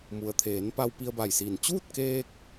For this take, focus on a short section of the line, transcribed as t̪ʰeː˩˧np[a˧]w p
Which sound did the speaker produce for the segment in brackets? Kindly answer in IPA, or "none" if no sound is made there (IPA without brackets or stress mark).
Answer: a˧